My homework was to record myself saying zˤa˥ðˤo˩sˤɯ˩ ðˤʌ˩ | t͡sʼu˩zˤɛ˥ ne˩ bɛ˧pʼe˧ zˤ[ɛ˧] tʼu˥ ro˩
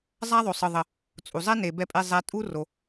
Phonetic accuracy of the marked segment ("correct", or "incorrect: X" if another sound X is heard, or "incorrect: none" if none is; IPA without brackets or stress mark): correct